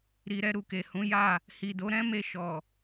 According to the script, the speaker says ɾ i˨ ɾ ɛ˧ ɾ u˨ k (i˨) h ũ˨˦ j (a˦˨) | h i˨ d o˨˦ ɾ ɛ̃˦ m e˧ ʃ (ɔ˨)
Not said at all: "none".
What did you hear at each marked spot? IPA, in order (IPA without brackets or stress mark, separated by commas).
e˨, a˦˨, ɔ˨